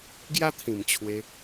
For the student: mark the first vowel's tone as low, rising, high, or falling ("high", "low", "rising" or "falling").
high